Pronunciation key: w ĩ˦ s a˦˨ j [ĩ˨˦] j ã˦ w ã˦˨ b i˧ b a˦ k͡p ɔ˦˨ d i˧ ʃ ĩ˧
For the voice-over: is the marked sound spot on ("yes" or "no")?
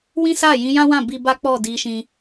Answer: yes